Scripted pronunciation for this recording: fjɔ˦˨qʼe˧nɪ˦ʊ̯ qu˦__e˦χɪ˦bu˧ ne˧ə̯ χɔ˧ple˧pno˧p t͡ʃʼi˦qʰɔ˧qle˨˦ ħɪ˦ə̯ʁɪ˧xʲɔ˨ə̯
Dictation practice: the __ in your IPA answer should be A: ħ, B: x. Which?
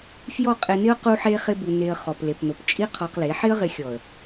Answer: A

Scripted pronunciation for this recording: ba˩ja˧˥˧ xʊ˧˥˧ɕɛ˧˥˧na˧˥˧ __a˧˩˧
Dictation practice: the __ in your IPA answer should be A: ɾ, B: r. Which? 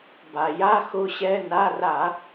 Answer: B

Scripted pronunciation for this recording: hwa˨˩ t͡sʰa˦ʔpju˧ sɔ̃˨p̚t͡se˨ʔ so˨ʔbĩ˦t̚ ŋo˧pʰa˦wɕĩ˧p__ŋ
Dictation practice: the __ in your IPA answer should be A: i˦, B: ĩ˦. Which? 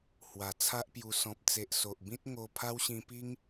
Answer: A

